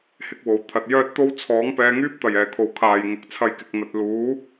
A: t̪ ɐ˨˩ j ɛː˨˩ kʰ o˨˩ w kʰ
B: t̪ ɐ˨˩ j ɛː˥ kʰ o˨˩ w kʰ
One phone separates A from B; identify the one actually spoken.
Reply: A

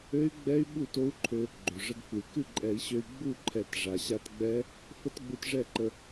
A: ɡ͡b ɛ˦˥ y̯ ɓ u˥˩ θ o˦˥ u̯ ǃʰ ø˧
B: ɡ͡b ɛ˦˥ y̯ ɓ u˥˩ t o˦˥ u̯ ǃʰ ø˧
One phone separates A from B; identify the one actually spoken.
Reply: B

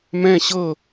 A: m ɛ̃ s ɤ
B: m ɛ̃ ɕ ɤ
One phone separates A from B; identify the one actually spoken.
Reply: B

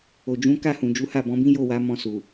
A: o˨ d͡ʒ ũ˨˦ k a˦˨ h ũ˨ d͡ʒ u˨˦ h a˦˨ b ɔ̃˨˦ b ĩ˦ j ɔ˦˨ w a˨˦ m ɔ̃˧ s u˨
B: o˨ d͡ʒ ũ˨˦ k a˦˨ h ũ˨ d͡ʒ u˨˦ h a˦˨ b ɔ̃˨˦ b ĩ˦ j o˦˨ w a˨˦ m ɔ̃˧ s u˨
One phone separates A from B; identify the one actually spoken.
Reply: B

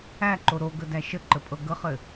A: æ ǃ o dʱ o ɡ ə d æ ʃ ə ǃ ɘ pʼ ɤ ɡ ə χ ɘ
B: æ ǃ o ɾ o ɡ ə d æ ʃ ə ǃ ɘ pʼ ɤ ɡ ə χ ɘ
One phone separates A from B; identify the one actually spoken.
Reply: B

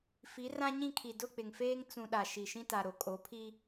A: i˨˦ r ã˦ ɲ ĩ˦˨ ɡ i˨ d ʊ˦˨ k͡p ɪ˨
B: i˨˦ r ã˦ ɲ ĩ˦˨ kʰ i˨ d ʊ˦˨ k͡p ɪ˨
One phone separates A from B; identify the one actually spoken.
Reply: B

